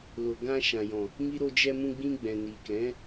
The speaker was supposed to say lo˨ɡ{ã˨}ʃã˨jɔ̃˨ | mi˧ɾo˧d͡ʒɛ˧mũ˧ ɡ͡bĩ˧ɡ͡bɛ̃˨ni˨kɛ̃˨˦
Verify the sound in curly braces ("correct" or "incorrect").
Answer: incorrect